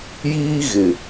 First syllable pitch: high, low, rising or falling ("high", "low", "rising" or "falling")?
high